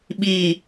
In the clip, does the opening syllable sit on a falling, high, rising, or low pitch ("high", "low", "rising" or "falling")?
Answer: low